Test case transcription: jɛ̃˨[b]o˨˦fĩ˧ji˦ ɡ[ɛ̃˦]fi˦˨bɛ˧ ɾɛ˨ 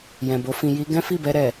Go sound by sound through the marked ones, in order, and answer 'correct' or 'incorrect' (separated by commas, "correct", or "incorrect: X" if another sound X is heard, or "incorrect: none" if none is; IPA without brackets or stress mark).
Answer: correct, correct